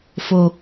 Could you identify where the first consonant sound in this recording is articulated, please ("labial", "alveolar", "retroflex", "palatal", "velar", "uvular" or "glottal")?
labial